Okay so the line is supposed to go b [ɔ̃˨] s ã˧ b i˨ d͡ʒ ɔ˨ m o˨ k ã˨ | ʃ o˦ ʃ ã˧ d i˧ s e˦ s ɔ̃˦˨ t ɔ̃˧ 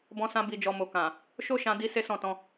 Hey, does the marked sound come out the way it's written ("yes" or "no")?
no